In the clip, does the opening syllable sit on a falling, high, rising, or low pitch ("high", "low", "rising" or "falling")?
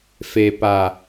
low